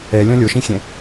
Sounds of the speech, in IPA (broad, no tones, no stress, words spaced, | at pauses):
ɛlʲɔ̃ lʲoʃĩxʲɛ̃